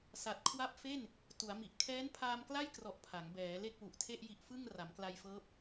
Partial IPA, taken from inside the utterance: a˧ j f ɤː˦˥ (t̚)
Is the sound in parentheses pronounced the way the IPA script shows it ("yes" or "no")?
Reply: no